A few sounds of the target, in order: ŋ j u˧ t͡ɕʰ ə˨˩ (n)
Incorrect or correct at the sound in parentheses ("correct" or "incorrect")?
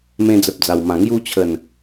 correct